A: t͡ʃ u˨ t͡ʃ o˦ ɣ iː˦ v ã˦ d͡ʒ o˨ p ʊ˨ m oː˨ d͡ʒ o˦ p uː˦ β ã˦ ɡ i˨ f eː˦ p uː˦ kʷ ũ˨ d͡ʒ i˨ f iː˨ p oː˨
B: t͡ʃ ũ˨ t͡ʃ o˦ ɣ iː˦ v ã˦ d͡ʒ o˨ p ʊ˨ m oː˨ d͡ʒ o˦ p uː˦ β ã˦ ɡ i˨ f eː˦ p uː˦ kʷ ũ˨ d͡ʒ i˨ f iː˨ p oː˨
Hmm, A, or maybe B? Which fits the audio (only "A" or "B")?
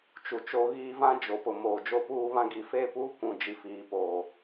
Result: A